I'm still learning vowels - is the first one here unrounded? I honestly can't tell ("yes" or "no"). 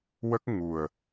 yes